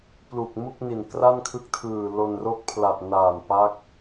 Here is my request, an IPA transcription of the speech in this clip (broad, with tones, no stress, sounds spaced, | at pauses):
p l u˨˩ k̚ m u˥˩ k̚ n i˨˩ n k r a˥˩ n kʰ ɯ˦˥ k̚ tʰ ɯː˨˩ l o˧ n r o˦˥ k̚ pʰ l a˨˩ t̚ n aː˨˩ n p a˦˥ k̚